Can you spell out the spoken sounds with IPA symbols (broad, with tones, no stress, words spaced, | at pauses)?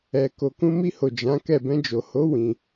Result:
ɛ˨ ko˨kũ˧mi˧ho˨ d͡ʒã˨˦kɛ˦˨ bɛ̃˧d͡ʒo˨ho˨˦ wĩ˧